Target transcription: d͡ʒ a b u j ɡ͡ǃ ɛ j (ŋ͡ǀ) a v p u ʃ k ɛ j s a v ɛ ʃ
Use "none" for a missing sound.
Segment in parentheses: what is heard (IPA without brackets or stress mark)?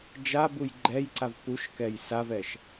ǀ